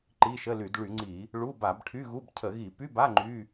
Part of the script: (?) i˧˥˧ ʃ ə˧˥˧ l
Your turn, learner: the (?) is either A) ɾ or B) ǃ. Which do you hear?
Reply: B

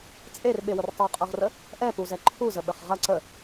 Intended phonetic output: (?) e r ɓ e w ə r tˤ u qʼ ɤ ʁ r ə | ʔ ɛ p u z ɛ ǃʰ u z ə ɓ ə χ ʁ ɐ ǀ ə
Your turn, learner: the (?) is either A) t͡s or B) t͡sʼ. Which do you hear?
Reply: B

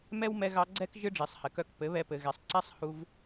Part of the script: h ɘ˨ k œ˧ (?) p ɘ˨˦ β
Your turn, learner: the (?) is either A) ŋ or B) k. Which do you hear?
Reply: B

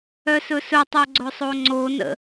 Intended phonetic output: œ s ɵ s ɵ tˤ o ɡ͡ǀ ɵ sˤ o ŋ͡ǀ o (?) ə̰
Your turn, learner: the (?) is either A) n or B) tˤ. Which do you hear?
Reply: A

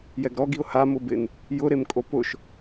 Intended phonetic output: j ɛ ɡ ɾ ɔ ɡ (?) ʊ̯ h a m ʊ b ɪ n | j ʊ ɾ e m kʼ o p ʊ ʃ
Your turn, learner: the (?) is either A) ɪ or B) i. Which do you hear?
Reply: B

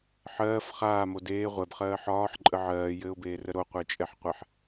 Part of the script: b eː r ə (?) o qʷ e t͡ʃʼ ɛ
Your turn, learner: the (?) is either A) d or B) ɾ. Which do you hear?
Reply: B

